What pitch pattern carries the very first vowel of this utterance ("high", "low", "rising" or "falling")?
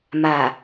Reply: low